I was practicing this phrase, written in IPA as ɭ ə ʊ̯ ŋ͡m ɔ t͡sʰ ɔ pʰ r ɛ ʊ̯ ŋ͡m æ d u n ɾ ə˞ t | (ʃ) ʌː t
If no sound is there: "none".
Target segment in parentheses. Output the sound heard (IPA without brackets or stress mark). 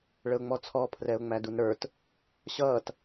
ɕ